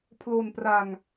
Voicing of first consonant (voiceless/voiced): voiceless